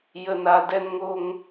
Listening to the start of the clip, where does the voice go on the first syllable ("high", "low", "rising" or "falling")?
low